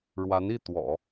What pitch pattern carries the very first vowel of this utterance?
rising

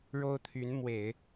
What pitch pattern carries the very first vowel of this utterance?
high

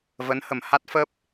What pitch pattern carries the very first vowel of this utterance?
rising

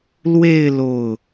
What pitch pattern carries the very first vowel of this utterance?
falling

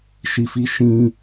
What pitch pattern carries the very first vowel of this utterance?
low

